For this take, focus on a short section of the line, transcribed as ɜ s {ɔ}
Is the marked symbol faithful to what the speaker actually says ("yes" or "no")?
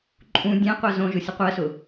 no